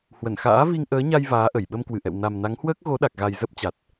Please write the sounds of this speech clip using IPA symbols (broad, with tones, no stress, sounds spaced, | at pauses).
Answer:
h w ə˧˩ n x a̰ː˧˥ v i˧ ŋ ʔ əː˨˦ ɲ a˧ j v aː˨˦ ʔ ə˧˩ j ɓ ə˧ m k w ɨ˧˩ ʔ ɛ̰˧˨ w n a˨˩ m n a˨˦ ŋ h w əː˦˥ k̚ ɣ o˨˦ ɗ a˨˩ k̚ ɣ a˨˩ j z ə˦˥ p̚ t͡ɕ a˨˩ t̚